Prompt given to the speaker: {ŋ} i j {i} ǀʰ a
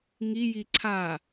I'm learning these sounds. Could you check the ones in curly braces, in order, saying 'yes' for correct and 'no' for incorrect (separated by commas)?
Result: yes, yes